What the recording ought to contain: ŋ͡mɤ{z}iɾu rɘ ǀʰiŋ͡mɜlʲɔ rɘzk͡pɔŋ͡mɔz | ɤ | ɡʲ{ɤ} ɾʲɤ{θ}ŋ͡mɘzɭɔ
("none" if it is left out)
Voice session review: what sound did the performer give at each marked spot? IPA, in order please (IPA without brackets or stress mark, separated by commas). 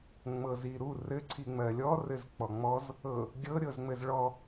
z, ɤ, z